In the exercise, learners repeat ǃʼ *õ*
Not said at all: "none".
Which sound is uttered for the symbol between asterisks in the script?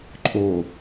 o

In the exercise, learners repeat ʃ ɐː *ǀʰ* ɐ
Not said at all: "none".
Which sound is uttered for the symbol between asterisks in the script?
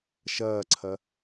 ǀʰ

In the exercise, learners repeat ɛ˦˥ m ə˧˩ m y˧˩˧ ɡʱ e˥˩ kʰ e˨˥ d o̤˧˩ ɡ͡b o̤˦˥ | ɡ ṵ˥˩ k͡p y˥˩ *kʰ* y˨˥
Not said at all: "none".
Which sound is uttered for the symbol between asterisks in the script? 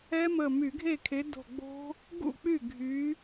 ɡʱ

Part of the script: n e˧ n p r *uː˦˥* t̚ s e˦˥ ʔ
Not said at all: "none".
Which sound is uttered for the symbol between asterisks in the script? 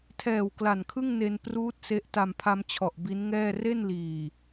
uː˦˥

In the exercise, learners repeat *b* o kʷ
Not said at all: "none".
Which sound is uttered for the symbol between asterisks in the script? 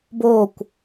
b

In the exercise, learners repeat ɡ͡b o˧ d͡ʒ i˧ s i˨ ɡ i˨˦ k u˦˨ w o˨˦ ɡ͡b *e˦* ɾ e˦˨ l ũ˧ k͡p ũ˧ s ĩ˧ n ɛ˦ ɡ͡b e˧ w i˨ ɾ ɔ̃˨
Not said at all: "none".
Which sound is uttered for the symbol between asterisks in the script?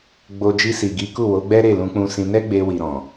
ɛ˦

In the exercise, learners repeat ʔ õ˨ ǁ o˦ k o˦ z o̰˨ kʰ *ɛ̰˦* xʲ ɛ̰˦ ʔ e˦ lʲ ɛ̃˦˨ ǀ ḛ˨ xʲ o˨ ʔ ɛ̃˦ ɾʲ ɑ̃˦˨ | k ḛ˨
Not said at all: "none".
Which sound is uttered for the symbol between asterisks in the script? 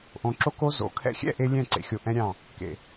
ɛ̰˦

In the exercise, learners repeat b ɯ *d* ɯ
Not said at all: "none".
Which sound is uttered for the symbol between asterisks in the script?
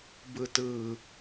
t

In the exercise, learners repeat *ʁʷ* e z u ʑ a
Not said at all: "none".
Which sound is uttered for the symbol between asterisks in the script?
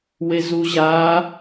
w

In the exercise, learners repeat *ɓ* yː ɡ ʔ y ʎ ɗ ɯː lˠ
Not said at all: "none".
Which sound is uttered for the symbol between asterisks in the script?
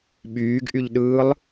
ɓ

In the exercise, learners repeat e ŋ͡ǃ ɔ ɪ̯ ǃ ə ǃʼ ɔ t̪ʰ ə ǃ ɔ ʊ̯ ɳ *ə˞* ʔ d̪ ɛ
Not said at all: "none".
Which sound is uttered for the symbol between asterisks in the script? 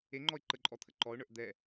ə˞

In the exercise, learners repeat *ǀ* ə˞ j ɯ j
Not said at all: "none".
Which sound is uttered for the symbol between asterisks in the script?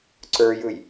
ǀ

